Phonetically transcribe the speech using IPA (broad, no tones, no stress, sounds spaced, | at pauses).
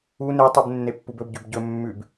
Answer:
u n e tˤ u b nː e pː u b ɵ b ɟ ʉ b ɟ ɵ mː ʉ b